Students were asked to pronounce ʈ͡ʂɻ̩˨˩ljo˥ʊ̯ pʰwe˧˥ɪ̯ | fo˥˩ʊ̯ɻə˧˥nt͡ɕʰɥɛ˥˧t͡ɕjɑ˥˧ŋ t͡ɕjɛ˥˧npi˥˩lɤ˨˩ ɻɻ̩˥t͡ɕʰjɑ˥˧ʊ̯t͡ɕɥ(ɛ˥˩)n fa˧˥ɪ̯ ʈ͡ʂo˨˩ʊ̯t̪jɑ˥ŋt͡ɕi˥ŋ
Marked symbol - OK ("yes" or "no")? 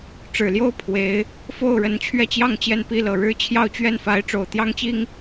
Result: yes